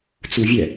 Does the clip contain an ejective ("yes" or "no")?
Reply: no